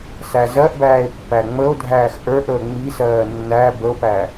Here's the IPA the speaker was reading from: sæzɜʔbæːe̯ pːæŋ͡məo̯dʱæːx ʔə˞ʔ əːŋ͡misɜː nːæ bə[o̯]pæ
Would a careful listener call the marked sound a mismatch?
no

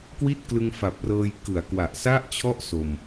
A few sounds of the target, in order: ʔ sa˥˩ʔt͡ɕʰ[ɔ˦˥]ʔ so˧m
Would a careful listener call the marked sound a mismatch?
yes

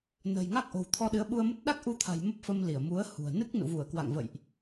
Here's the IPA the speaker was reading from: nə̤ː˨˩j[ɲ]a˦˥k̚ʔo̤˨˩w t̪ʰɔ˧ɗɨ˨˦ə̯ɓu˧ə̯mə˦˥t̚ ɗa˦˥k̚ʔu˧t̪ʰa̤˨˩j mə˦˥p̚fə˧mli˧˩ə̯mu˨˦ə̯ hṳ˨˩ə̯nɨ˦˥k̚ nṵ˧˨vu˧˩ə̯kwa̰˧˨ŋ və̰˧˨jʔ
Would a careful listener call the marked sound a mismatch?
yes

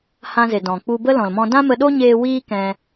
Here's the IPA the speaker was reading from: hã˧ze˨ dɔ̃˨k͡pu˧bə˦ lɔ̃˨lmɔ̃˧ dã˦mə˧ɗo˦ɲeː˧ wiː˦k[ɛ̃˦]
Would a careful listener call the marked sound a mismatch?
yes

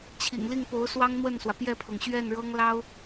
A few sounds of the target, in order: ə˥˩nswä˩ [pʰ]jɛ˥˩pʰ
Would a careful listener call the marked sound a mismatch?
yes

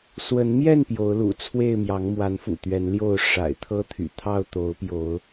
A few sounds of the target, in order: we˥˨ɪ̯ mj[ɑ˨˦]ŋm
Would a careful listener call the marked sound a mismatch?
no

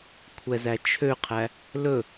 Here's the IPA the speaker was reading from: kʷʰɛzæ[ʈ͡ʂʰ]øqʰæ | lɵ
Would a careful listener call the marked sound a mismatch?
yes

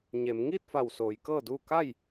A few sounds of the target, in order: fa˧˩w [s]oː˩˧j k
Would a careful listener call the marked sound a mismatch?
no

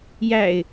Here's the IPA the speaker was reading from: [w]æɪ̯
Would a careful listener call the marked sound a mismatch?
yes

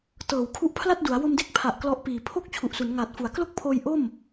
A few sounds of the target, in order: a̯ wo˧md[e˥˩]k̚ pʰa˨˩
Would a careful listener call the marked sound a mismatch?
no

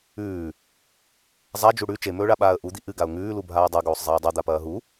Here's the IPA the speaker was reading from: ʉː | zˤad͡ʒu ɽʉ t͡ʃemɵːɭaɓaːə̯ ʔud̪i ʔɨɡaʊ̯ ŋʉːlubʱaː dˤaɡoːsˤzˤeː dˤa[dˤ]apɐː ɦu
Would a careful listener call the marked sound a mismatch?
yes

